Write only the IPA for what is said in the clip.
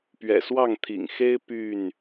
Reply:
p ɥ ɛ̰˨˩ s w ɑ˥˨ ŋ t̪ʰ ḭ˨˩ ŋ x e˦ ɪ̯ p y˥˨ n

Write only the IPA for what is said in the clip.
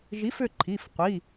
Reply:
ʒ i˨˥ f ʏ˦˨ ǃʰ i˩˧˩ f qʷ i˩˧˩

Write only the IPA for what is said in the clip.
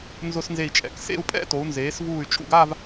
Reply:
n z ʊ˧ s n z e˧˩ i̯ t͡ʃʼ ɛ̰˧˩ k s ḛ˥˧ u̯ pʼ ɛ̰˥ t o˩˧ u̯ n z eː˩˧ s v uː˧˩ y̯ t͡ʃʼ ṵ˧ ɡ a˥˧ v

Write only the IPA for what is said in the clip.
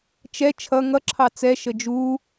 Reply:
t͡ʃ ɛ t͡ʃʰ ʌ ŋ ʌ ǁʰ ɑ t͡s ɛ ʃ ə d͡ʒ u

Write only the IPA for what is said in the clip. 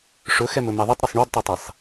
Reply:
ʂ ɵ x ɛ m ɵ m ɛ ðˤ ɵ tˤ ɾ ɵ sˤ ɳ o d tˤ o tˤ e sˤ

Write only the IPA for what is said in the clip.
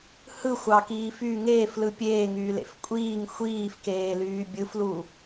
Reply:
h ɯ xʷ ɑ k iː f y ŋ eː f l ɯ pʲ eː ŋ yː l ḛ f kʷʼ iː ŋ xʷ iː f k eː l yː bʲ ɯ f l u

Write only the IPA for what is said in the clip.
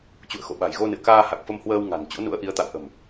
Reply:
t͡ɕ ṵ˧˨ ə̯ x o̰˧˨ ɓ a̤˨˩ j ɣ o˧ n ɨ̰˧˨ ə̯ k aː˧ h a˨˩ k̚ f ə˧ m h w əː˧ w ŋ a̤˨˩ n t͡ɕ o̰˧˥ n ṵ˧˥ ə̯ ʔ i˨˦ ə̯ t̪ a̰˧˨ w ʔ ə̤˨˩ m

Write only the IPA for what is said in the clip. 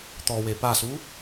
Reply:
t̪ ɔ w e p a s u

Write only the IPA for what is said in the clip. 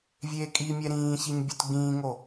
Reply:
vʲ eː kʼ i mʲ ɛ ɾ ĩː ç i ɲ bʲ u t ɡ͡b ĩː ŋ o

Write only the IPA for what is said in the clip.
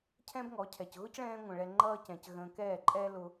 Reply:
cʰ ɛ̃˦ b ŋ ɔ˨˦ cʰ ɛ˨ c ɣ ʊ˦ c ɭ ɛ̃ː˧ ŋʷ ə̃˨ ɭ ɛ˧ ŋ͡ǃ ʌː˦ c ɛ̃˨ c ɣ ə̃ː˧ k ɛː˦˨ ǃʼ ɛː˦ l ʊ˧

